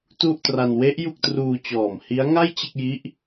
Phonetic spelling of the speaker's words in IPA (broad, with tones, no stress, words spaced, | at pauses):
tu˥˩ʔtra˧n we˦˥ʔ ju˥˩k̚truː˧t͡ɕɔː˨˩m hi˦˥a̯ŋa˥˩j t͡ɕe˥˩k̚ji˦˥ʔ